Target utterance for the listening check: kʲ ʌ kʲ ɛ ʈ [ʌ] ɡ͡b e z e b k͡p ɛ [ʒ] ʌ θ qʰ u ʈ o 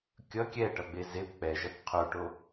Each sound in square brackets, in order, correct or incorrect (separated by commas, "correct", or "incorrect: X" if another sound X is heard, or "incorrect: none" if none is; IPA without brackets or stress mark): correct, correct